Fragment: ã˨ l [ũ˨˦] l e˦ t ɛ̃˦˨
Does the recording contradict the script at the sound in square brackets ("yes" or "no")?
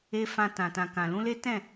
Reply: no